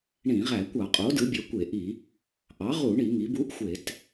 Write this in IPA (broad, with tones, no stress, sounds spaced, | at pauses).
ɳ ĩ˧˩˧ ʁ æ˧˩˧ kʷ ɑ˧˩˧ qʼ o˩˥ d ɯ˩˥ bʲ ø˩˥ kʷ e˧˩˧ ʔ i˧˩˧ | ʔ ɑ˩˥ ʁ u˧˩˧ ɳ i˧˩˧ ŋ i˩˥ b u˧˥ ʔ xʷ e˧˩˧ t